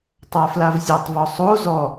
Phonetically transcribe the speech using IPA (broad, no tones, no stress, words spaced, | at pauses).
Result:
tˤaflavzʲatˤ vɔsˤo zɔ